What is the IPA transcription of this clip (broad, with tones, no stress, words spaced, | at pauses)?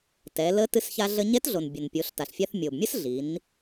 tɛ˩˧lə˧˥ tɨ˧sça˧ɮə˧ ɲɛ˧˥tɮo˩nbʲə˩n pʲo˩˧ɬta˩ɬfʲa˧θ mʲo˩bmʲə˥sɮi˩˧n